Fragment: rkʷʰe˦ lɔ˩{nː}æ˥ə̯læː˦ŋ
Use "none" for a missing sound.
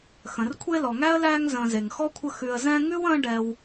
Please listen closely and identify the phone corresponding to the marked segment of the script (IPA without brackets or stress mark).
ŋ